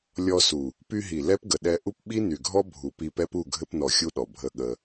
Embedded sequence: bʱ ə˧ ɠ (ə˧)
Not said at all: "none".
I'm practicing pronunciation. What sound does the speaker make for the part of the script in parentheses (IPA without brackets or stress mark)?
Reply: ə˧